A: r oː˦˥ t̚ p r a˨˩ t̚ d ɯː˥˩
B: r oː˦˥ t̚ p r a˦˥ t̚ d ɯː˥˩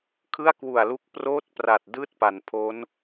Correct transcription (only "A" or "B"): A